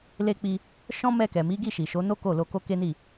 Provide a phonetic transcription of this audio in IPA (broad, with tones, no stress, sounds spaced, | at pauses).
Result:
l e˧ k͡p i˧ | ʃ ɔ̃˦ m ɛ˧ k ɛ˨ m i˨˦ ɡ i˦˨ ʃ i˨ ʃ o˨˦ n o˦ k o˦˨ l o˧ k o˦ k e˦ n i˦˨